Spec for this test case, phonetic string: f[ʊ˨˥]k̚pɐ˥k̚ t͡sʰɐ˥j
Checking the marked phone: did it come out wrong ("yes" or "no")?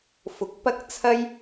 no